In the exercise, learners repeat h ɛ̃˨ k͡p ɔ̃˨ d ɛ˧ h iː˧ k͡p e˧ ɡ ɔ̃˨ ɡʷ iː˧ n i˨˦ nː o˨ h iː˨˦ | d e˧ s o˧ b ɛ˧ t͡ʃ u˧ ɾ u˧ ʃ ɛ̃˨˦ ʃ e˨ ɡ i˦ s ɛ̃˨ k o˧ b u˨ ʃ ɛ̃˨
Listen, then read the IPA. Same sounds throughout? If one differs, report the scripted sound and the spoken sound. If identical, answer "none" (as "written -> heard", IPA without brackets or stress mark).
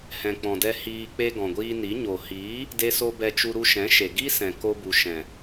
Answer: nː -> ɲ